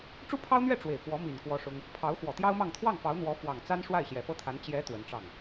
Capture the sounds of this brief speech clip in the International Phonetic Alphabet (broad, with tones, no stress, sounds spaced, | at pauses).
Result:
ʈ͡ʂ u˥ pʰ ɑ˥ ʊ̯ n̪ ɥ ɛ˥˩ ʈ͡ʂ w e˨˩ ɪ̯ k w ɔ˧˥ m i˨˩ n k w ɔ˥ ʂ ʊ˥ ŋ | pʰ ɑ˧˥ ʊ̯ x w ɔ˨˩ t̪ j ɑ˥ ʊ̯ m ɑ˥˧ ŋ t̪ʰ w ɑ˥˩ ŋ f ɑ˧˥ ʊ̯ n̪ w ɔ˧˥ f w ɑ˨˩ ŋ t͡s a˥ n ʂ w a˥˩ ɪ̯ ɕ j ɛ˨˩ f ɤ˥ t̪ʰ a˧˥ n t͡ɕ j ɛ˧˥ t̪ w ə˧˥ n ʈ͡ʂ ɑ˥˩ ŋ